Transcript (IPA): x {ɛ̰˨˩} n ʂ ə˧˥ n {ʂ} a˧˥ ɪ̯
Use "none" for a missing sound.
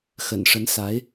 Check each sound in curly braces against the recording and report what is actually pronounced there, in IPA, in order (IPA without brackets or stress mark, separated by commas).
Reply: ə̰˨˩, s